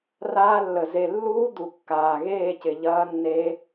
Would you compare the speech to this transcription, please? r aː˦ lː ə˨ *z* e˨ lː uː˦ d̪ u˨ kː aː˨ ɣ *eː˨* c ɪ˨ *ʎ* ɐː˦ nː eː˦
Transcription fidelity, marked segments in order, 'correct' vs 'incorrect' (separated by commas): correct, incorrect, correct